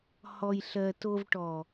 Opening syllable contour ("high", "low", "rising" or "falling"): low